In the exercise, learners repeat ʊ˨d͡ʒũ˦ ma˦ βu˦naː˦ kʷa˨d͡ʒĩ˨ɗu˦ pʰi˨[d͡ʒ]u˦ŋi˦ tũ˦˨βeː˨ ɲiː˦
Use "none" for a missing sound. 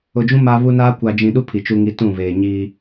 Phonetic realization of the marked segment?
t͡ʃ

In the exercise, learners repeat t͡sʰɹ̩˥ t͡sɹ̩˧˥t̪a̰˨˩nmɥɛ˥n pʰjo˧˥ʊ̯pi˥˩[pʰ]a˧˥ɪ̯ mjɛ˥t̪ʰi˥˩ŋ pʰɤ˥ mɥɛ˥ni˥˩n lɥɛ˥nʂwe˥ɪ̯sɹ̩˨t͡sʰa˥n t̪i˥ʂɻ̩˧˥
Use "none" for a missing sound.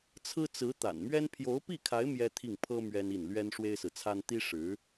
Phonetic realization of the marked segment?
kʰ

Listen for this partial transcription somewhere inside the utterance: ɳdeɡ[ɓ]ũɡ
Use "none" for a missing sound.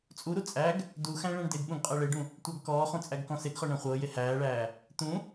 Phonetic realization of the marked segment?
ɓ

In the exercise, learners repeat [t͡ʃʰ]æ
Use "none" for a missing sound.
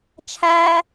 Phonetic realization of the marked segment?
t͡ʃʰ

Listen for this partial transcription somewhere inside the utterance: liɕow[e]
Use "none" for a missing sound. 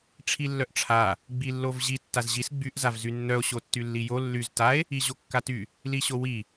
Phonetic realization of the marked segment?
i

